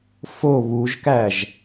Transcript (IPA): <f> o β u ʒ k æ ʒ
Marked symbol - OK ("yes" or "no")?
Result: yes